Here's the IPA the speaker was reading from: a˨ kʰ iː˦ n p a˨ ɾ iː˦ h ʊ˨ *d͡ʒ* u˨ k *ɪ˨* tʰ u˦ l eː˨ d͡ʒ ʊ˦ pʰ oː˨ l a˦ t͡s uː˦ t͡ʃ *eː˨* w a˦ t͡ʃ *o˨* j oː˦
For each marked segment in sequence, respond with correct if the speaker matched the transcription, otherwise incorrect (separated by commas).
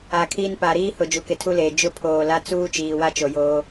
correct, correct, incorrect, correct